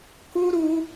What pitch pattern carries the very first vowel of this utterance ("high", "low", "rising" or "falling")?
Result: high